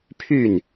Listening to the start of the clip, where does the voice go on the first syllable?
falling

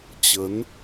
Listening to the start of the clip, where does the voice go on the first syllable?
rising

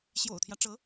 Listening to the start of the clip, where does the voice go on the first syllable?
low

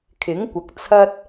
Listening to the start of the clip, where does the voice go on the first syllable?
rising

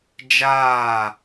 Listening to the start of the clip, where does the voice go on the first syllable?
falling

